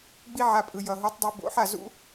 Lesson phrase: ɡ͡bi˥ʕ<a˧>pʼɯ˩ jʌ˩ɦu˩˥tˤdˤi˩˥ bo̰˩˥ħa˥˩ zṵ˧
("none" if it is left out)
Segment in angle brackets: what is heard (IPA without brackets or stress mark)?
a˧